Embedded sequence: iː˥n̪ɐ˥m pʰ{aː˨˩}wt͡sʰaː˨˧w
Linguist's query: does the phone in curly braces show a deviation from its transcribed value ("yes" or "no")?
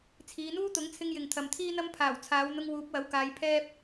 no